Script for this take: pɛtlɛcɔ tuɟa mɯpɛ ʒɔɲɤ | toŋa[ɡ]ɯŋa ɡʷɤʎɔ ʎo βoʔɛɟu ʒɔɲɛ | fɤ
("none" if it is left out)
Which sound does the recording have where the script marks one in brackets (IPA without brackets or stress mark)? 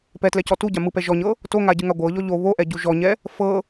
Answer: ɟ